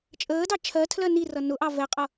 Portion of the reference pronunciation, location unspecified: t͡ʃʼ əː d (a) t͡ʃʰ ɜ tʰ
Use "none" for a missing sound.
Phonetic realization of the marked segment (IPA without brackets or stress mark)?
ɑ